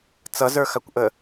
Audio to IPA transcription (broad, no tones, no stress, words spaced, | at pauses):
t͡sʌzə˞xakʷʔə